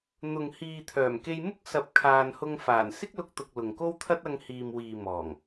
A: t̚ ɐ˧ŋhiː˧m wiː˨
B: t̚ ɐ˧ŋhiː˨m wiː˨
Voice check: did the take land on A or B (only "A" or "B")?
B